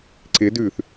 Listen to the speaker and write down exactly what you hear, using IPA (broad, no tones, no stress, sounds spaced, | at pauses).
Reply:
ǀ ɪ d ʉ θ